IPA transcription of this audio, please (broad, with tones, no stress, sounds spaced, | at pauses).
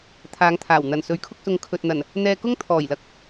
t̪ʰ aː˨˧ ŋ t̪ʰ aː˨˩ w n̪ ɐ˨˩ n s ɵ˨˥ ɥ kʰ ʊ˧ k̚ s ʊ˨ ŋ kʰ ɵ˨ t̚ n̪ ɐ˨˩ n | n̪ ɛː˧ k ʊ˥ ŋ t̪ʰ ɔː˨˩ j l ɐ˨ k̚